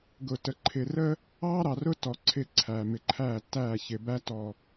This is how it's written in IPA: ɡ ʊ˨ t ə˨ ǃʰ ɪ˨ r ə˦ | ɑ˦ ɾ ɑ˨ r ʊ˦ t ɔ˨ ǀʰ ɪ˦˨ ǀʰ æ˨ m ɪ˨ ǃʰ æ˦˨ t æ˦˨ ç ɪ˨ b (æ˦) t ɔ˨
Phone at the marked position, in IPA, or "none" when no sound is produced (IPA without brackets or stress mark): æ˦